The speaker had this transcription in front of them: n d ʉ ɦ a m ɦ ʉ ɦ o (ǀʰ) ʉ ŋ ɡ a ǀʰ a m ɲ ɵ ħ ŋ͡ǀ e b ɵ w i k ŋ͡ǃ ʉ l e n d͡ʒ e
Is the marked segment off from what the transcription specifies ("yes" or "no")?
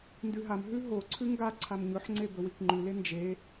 no